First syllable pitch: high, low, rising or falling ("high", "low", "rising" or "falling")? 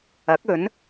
rising